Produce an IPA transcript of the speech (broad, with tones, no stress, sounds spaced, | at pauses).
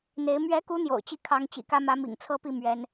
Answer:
n̪ e˧˥ ɪ̯ m ɥ ɛ˧˥ k u˧˥ n̪ j o̰˨˩ ʊ̯ t͡ɕ i˥˩ kʰ ɑ˧˥ ŋ t͡ɕ ḭ˨˩ k ä˥ m ä˧˥ m ḭ˨˩ ŋ t͡sʰ ɤ˥ p i˥˩ m ɥ ɛ˧˥ n